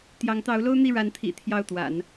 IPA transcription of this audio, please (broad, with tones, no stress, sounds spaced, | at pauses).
t̪ j ɑ˧˥ ŋ t̪ ɑ˧˥ ʊ̯ l o˥ ʊ̯ n̪ i˥˩ ɻ a˧˥ n t̪ʰ ḭ˨˩ t̪ʰ j ɑ˥˩ ʊ̯ t̪ w a̰˨˩˦ n